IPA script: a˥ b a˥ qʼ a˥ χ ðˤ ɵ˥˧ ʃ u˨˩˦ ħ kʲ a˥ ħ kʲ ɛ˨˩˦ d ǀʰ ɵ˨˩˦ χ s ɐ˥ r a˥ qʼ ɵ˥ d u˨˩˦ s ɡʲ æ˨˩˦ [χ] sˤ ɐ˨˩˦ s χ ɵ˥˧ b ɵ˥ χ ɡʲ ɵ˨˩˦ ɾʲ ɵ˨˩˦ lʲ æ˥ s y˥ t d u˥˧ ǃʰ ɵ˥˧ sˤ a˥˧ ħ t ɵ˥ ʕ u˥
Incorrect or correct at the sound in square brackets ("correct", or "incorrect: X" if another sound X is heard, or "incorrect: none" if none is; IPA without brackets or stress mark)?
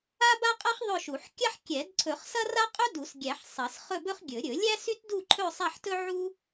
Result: incorrect: ħ